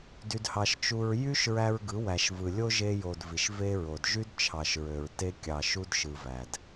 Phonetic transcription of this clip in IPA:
dy˧dhɑ˧ʃ t͡ʃu˧ɹ jy˦ʃɹæ˧ɹ ɡɯ˨˦wæ˨ʃvɯ˨lʲo˦ ʒe˧jo˨d vi˨ʃve˦ɹo˨d ʒy˦dt͡ʃʰɑ˨ʃɹø˨ɹ te˦ kʲɑ˨ʃu˦d ʃɯ˧væ˨d

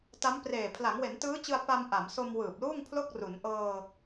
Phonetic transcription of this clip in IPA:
ta˦˥mpreː˨˩ pʰla˩˦ŋwe˩˦ntɯː˦˥t͡ɕɯ˧a̯ pa˧m ʔa˩˦mso˧m wɯː˨˩p̚luː˥˩ŋpʰlo˥˩k̚ ru˩˦nʔɤː˧

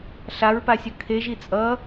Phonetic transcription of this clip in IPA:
ɬaɹpasʲʌ kʰeʒi t͡sʼʌ

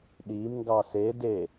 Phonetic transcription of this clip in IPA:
ɗimŋɡɑ se de

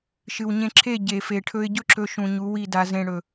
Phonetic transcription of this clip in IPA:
ʃɨ˨wɲẽ˧ǁʰe˦˨ ɟe˨fe˨ʈʰɵ˧ɪ̯ ɟɵ˦ǁɵ˧ʃũ˨ ɲu˨˦wi˦˨da˧zẽ˧ ɽɵ˨

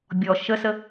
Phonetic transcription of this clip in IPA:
bʲɔ ʃəsə

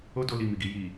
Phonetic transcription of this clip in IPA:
o˦do˧li˨ mi˨ɡi˧ ji˨

